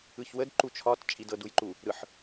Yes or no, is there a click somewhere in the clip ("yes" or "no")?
yes